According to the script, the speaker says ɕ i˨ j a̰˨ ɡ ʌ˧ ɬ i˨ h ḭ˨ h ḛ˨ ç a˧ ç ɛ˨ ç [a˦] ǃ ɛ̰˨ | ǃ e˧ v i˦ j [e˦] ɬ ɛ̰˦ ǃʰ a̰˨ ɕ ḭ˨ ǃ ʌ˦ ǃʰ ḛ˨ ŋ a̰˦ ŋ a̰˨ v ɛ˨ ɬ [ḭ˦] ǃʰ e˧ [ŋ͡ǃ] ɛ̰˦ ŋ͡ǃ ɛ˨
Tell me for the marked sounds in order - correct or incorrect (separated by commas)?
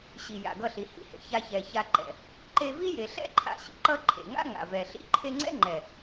incorrect, incorrect, correct, incorrect